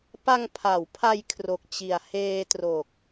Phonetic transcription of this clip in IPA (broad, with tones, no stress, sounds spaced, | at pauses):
p a˧ ŋ pʰ a˩˦ w pʰ a˧ j kʰ r o˨˩ k̚ t͡ɕ i˨˩ a̯ h eː˧ t r o˨˩ k̚